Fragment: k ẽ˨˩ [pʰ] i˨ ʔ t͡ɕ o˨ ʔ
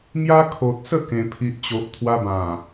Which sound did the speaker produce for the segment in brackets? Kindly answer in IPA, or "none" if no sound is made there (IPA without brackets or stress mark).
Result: pʰ